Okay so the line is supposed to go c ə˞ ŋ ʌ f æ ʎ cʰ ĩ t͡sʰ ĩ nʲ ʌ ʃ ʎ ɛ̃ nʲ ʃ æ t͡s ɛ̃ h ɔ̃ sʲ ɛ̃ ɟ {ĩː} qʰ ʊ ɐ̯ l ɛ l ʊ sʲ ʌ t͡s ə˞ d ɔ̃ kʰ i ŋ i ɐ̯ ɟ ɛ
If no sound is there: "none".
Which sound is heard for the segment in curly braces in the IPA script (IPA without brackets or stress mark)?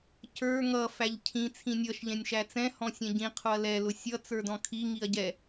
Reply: ĩ